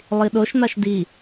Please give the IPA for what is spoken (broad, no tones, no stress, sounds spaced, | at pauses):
lˠ i ɗ o ʃ n̪ a ʃ d i